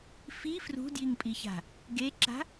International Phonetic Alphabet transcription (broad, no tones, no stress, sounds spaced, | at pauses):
f i f r ṳ d j i ŋ pʼ i ç a̤ | ɡ e ǁ a̤